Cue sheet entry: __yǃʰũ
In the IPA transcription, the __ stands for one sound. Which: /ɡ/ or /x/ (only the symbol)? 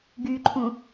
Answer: ɡ